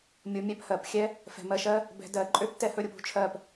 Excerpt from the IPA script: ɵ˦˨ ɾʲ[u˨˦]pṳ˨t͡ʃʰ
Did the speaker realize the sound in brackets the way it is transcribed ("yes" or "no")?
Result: no